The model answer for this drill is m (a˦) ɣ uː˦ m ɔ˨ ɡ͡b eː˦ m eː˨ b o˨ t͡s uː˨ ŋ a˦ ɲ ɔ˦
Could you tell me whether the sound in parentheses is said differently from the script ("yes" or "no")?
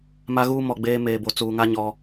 no